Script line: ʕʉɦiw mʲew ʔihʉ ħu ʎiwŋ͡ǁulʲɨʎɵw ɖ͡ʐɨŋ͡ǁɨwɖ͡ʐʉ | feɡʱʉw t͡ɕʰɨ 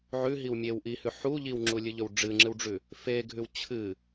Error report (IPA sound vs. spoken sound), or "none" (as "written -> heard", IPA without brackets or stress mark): none